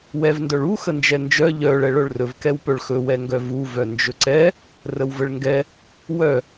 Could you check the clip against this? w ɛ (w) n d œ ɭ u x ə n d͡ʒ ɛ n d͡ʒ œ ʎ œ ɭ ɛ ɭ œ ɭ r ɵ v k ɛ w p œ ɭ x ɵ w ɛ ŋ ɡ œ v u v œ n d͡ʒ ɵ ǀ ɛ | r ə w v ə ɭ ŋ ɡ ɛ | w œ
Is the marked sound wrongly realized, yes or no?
yes